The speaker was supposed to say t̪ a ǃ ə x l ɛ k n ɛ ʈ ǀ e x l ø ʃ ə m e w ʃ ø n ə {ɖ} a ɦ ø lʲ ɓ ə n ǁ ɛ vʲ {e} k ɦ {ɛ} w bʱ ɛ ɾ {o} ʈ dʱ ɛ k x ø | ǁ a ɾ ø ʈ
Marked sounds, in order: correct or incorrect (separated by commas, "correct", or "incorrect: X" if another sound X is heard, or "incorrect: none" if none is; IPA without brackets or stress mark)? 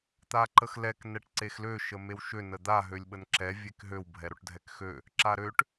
incorrect: d̪, correct, incorrect: ø, correct